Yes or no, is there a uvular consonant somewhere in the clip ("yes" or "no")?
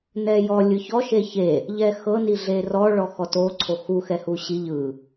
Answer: no